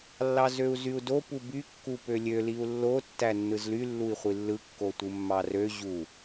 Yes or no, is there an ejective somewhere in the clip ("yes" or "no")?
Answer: no